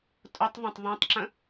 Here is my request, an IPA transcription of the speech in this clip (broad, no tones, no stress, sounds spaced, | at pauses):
tʼ ʊ tˤ ðˤ ə̃ tˤ ðˤ ẽ tˤ ǁ ə̃